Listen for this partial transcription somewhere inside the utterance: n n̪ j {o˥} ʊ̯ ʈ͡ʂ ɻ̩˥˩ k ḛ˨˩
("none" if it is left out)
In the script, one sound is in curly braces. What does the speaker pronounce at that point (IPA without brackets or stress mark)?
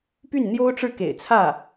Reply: o˥